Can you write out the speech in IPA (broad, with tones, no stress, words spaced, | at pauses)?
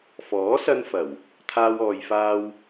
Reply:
fɔː˨˥sɐ˧nfɐ˨˩w | t̪ʰaː˥wɔː˧jfaː˥w